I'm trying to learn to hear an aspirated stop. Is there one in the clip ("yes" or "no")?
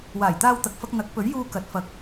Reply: no